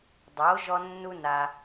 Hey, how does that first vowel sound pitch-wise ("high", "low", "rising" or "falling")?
rising